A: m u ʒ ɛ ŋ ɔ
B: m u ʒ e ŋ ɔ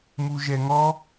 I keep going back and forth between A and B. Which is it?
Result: A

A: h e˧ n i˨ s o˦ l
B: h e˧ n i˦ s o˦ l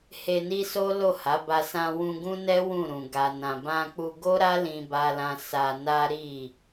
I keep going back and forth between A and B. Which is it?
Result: B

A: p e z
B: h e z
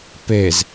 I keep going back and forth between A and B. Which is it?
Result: A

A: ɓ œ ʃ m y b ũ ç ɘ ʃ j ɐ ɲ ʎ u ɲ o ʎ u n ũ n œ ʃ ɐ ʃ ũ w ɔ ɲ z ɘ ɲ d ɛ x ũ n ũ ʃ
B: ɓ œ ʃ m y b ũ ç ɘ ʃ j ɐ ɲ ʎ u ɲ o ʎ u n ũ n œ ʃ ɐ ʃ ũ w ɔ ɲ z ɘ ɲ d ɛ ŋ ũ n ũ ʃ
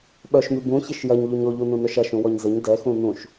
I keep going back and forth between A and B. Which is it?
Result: A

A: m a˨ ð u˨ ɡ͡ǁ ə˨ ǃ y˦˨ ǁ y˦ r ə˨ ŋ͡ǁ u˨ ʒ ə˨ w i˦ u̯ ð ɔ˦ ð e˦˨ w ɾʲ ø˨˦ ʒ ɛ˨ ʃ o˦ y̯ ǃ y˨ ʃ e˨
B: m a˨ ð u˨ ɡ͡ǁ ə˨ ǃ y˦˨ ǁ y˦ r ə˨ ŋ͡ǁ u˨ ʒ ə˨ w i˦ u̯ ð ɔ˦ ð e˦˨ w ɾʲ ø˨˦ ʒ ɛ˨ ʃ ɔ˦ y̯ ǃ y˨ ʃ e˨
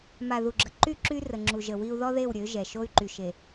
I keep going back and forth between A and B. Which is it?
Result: A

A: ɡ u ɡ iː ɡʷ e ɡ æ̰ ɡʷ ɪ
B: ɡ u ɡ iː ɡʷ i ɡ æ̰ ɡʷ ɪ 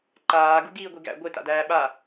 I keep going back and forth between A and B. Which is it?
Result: B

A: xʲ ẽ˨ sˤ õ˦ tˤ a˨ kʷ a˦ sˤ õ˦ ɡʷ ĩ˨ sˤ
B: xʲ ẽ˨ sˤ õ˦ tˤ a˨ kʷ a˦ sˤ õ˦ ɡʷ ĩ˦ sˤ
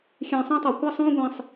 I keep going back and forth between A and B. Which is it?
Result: A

